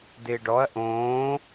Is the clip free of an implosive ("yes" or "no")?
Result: yes